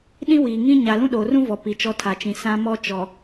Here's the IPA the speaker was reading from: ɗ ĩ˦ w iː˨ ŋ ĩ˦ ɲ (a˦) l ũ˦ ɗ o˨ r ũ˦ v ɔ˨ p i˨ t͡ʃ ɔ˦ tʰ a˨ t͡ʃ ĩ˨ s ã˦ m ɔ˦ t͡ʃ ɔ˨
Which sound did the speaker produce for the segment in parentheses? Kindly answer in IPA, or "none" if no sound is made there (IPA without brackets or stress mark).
a˨